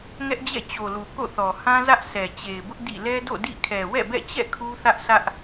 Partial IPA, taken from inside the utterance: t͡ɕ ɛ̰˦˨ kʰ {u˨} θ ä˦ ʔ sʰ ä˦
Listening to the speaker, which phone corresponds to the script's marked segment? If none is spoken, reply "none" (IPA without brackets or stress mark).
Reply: u˦